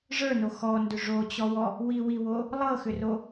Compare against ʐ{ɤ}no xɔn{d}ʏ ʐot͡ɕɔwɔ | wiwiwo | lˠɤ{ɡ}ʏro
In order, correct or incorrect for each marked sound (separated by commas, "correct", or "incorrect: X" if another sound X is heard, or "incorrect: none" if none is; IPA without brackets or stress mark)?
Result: incorrect: ə˞, correct, incorrect: x